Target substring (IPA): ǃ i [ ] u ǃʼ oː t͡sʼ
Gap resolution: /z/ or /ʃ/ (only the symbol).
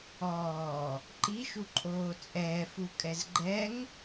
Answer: ʃ